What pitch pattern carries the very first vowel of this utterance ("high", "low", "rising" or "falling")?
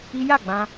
high